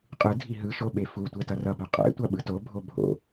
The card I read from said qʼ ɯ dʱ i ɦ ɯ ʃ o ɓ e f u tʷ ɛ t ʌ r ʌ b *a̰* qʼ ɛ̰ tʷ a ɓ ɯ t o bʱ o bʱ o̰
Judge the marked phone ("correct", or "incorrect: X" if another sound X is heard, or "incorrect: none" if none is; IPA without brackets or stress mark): incorrect: a